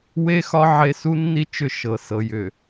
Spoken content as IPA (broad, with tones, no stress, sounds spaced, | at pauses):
w e˦ x ɒ˦ ʕ e˦ s u˦ nː i˦ t͡ʃ ʏ˦˨ ʃ ɤ˨ s ɤ˨ j ʏ˨